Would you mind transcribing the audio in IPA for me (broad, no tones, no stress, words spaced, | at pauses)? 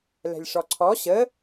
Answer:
lɛ̤lʲʂɔǀʰɔ ɕə